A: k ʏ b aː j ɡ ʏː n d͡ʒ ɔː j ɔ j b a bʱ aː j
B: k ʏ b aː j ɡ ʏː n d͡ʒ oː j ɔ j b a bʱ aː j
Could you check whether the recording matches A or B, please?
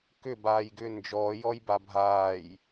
A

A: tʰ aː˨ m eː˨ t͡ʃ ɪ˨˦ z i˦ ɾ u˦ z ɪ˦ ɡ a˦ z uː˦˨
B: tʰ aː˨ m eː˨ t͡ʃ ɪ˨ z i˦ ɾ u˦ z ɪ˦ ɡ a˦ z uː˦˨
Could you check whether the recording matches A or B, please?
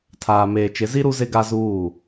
A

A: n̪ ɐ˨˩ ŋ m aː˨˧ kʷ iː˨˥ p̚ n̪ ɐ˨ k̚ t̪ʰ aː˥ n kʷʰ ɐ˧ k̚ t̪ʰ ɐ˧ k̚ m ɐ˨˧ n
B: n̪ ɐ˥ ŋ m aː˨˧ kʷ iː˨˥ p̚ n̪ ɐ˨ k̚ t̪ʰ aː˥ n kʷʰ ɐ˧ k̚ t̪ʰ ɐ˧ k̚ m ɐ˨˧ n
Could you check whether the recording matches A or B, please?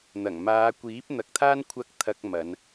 A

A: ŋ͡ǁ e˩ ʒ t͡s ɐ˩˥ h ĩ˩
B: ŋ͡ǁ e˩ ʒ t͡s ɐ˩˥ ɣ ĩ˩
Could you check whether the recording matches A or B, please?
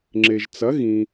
B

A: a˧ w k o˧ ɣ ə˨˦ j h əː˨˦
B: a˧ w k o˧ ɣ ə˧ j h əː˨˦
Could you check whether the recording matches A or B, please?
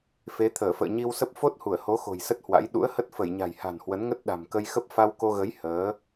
A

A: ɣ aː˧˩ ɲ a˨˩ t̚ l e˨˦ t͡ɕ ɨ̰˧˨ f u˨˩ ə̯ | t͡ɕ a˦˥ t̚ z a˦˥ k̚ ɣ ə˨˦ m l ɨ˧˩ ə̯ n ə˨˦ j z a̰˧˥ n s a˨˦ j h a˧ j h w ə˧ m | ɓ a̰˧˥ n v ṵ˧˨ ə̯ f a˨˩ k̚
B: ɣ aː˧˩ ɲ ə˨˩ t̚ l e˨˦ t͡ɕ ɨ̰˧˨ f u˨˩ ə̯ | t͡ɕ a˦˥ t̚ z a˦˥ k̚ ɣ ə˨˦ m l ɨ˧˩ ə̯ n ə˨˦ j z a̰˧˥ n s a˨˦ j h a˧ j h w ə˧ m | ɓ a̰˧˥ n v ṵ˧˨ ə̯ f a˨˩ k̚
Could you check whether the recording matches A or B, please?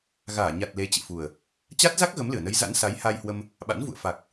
A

